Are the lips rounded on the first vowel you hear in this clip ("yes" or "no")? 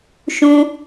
yes